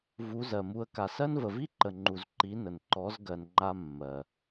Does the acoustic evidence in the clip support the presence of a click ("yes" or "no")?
yes